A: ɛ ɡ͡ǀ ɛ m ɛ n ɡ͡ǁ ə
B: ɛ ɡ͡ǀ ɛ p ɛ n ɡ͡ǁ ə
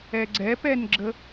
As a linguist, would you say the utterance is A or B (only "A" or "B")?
B